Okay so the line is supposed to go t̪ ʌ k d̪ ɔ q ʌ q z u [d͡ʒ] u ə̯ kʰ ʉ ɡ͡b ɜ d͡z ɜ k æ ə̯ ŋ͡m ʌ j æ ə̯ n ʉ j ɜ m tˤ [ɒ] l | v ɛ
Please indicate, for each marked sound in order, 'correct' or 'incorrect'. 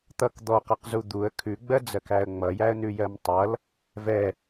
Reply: incorrect, incorrect

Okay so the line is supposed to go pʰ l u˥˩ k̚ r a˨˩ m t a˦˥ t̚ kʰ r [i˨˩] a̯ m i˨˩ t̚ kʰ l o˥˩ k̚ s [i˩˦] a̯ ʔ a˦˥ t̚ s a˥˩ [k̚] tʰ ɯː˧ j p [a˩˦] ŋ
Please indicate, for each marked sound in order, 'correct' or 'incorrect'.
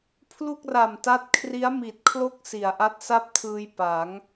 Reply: incorrect, correct, incorrect, correct

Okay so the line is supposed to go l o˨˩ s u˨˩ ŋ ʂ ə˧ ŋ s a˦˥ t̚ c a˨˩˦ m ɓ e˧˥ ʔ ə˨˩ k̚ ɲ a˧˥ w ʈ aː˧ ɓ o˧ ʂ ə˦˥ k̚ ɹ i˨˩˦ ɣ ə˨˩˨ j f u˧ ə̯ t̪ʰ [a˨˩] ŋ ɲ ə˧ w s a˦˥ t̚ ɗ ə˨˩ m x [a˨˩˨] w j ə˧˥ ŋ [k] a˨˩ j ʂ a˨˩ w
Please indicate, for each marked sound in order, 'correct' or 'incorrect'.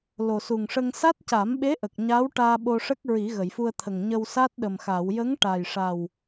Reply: incorrect, incorrect, incorrect

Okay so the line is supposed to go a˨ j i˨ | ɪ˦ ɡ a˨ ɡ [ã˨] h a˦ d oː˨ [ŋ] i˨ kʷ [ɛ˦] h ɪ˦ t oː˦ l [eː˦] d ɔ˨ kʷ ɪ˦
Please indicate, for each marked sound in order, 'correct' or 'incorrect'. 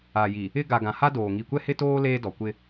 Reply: correct, correct, correct, correct

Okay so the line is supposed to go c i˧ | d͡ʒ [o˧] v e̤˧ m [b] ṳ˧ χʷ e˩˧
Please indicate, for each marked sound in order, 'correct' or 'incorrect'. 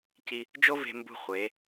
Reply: incorrect, correct

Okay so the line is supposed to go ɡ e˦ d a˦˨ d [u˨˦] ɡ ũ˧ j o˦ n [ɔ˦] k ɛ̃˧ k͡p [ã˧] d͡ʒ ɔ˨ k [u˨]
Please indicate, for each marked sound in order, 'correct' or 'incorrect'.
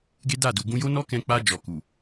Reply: incorrect, correct, incorrect, correct

